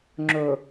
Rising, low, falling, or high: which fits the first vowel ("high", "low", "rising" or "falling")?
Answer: low